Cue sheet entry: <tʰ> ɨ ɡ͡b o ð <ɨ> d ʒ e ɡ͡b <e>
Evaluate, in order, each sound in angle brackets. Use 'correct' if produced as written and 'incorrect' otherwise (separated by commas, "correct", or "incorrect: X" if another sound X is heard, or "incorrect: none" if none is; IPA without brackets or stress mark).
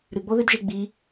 incorrect: ɾ, correct, incorrect: i